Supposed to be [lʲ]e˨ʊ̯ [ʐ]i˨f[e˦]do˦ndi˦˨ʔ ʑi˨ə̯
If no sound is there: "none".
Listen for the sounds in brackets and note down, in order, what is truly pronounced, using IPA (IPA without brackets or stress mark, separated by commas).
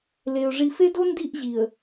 l, ʐ, e˦